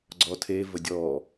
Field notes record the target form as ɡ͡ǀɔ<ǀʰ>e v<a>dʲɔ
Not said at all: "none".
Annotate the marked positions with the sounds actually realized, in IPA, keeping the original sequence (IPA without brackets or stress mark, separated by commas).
tʰ, ə